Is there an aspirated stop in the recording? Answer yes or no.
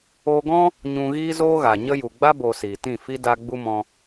no